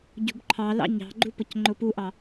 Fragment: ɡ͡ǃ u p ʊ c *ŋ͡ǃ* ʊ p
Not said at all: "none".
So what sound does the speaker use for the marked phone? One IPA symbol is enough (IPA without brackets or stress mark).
ŋ͡ǃ